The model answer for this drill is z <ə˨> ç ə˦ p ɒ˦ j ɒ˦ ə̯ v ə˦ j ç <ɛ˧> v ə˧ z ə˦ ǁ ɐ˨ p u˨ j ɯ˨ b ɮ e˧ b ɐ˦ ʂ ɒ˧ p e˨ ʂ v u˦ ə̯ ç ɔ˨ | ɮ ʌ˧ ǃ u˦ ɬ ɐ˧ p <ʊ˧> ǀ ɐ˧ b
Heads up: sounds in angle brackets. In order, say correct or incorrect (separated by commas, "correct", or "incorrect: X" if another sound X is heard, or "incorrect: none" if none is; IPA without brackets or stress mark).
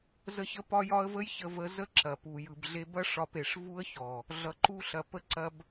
incorrect: ə˦, incorrect: ə˧, incorrect: ə˧